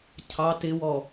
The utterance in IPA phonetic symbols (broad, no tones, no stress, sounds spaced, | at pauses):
cʰ ɑ t ɪ w ɔ